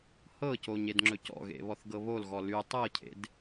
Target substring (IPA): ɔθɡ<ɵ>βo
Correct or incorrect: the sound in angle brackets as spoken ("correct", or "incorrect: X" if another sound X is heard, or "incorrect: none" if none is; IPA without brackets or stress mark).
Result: incorrect: ɤ